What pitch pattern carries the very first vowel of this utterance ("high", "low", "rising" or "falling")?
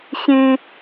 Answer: high